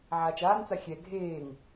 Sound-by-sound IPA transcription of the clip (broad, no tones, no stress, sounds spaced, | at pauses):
ʕ aː t͡ʃ aː n t͡s a xʲ ɛ ɡʱ eː ŋ